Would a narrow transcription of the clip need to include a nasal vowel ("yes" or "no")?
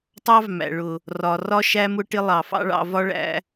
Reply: no